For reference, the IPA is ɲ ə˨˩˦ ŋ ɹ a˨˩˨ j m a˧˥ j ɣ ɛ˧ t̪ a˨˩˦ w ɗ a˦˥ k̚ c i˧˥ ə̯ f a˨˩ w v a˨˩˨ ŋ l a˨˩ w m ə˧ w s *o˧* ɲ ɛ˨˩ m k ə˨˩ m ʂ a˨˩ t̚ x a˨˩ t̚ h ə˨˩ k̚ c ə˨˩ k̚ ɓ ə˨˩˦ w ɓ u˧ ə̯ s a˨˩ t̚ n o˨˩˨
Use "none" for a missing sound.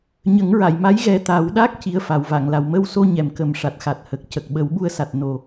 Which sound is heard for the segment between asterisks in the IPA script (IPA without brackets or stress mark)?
o˧